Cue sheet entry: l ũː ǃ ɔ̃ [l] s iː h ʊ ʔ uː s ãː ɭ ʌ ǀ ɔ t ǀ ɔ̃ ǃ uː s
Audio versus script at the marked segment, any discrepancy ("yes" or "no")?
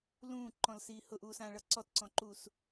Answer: no